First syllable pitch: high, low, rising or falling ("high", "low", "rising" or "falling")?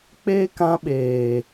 high